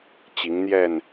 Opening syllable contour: rising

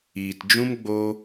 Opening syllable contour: low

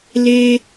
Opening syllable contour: high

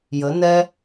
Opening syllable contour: rising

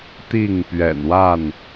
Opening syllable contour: falling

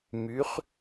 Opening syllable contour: rising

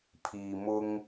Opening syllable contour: low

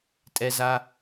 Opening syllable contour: high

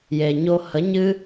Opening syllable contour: low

